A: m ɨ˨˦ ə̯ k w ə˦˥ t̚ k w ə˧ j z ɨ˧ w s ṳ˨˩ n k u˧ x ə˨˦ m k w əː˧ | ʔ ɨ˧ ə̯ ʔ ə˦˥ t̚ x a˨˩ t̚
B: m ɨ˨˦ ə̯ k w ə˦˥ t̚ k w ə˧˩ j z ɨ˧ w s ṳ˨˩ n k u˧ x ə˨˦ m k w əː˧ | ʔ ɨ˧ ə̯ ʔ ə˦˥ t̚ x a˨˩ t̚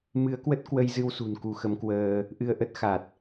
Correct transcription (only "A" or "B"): A